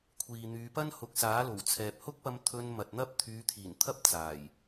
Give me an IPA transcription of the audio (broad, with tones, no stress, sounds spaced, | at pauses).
kʷʰ iː˨ n̪ yː˨˧ p ɐ˥ n h ʊ˨˥ k̚ s aː˨˥ l o˨˩ w t͡sʰ ɛː˨ p̚ h ʊ˥ k̚ p ɐ˧ m t̪ʰ ɵ˧ n m ɐ˨ t̚ n̪ ɐ˥ p̚ t̪ʰ yː˨˧ t̪ʰ iː˨˩ n t̪ʰ ɐ˥ p̚ t͡s aː˨˩ j